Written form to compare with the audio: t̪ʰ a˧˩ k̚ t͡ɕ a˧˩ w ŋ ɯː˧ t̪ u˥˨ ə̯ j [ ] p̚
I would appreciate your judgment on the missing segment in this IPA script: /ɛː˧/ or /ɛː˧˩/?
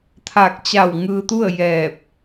ɛː˧˩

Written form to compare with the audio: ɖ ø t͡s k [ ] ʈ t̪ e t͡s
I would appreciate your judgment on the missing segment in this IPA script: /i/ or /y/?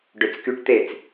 y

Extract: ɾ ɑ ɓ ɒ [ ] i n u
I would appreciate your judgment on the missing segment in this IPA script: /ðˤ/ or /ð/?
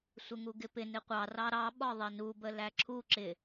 ðˤ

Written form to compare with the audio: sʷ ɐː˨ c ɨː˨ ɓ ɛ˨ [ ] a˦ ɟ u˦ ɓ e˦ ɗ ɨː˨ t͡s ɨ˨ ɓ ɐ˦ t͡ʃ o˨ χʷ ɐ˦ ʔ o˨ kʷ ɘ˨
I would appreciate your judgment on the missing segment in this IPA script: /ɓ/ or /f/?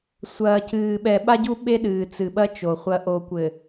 ɓ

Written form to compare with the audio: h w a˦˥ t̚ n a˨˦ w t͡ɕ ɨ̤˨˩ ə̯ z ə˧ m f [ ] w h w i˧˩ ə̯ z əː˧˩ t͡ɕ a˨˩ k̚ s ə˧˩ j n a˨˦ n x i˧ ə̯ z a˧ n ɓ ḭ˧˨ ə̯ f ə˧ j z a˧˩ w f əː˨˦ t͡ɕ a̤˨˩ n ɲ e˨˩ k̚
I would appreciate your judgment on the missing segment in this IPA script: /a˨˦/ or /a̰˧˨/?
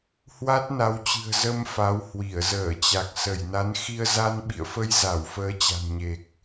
a˨˦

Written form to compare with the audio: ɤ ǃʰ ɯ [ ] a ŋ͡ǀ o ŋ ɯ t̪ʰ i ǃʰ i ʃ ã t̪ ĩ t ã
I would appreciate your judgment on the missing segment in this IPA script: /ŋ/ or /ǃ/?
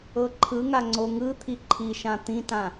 ŋ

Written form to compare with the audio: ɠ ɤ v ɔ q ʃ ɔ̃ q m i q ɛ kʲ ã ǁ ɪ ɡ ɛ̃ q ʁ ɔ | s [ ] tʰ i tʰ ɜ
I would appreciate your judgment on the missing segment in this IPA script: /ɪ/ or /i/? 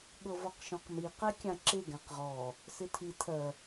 ɪ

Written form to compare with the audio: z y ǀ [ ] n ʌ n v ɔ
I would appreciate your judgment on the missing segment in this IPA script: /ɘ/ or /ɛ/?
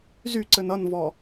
ɘ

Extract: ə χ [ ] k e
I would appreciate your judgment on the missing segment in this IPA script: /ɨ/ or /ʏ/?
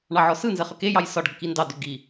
ʏ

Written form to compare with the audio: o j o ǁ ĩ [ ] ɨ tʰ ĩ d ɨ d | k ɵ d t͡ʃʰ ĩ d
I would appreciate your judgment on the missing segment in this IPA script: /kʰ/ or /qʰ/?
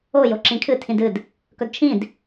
kʰ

